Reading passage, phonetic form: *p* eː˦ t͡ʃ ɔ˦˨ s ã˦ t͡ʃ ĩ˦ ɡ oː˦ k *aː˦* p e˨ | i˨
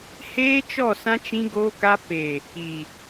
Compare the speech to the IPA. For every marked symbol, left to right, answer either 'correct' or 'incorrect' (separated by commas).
incorrect, incorrect